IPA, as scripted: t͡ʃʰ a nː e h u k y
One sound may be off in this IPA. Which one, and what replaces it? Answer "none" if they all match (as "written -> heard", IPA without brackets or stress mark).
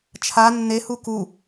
y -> u